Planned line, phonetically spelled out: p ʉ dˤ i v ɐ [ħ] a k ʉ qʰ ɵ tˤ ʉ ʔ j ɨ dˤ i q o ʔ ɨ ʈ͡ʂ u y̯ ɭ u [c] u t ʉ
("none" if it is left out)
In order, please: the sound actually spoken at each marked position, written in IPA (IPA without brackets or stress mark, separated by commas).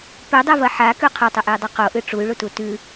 ħ, t